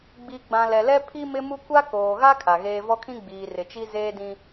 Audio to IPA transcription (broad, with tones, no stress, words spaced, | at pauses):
ɡ͡bi˨ɡ͡bã˨ lɛ˨lɛ˦ pʰi˦mɪ˦mu˦ kʷa˦ koː˨ ɣa˦ kʰa˨ɣeː˦ vɔ˦kʰĩ˦ ɡ͡biː˨rɪ˨t͡ʃi˦ zeː˦dĩ˦